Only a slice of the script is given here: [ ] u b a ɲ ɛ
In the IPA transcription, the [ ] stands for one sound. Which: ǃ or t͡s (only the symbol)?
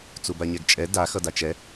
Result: t͡s